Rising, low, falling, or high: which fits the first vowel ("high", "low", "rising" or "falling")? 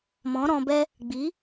rising